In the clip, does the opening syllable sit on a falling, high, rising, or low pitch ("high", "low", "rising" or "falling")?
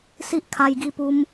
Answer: high